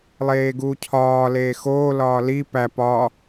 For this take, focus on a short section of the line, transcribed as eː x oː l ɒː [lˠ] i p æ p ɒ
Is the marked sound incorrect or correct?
incorrect